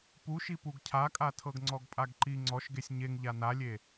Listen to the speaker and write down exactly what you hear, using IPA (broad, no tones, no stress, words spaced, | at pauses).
puʃi puɡcʰakʼa tʰɤɡŋ͡ǀɔɡpʼaɡǃi ŋ͡ǀɔʃɡesʲ ɲeŋʎa nalʲe